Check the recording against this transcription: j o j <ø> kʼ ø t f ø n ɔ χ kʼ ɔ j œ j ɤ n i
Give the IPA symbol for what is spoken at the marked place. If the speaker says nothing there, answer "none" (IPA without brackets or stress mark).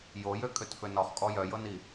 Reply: ø